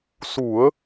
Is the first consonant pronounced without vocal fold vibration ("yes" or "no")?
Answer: yes